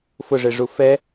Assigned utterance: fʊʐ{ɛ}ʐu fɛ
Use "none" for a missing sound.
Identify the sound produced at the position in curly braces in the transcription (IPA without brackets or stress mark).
e